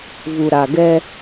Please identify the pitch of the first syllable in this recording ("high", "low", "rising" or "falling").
low